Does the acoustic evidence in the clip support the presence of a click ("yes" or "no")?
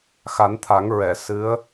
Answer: no